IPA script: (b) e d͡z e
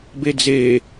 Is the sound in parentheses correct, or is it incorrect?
correct